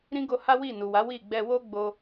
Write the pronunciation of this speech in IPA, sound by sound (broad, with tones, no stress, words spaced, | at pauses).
ɾĩ˦ɡo˧ha˦ wi˦˨nu˨wa˨˦ wi˦˨ ɡ͡bɛ˧wo˦ɡ͡bo˧